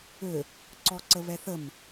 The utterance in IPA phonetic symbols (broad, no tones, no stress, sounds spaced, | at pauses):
ø | ǀ ɔ ǀ ə β ɛ θ ə m